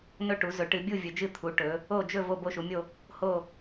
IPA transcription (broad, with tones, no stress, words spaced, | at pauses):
nɵ˦˨ʈu˩˧ zɵ˩˧ʈɨ˩˧bʲu˦˨ vʲɵ˩˧d͡ʒɨ˦˨t̪ʰu˩˧ ʈɵ˩˧ | o˦˨ d͡ʒɵ˦˨ vo˦˨bo˦˨ʃu˩˧mʲo˦˨ | ho˦˨